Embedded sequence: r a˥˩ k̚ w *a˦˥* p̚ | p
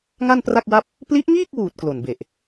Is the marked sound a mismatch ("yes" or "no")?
yes